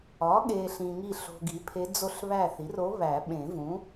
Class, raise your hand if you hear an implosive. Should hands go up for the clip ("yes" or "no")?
yes